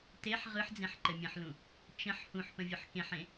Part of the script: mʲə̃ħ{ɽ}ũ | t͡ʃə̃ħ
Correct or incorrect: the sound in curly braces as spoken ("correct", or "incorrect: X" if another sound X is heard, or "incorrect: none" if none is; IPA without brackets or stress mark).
incorrect: l